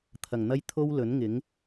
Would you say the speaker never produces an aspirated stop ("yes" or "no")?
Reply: no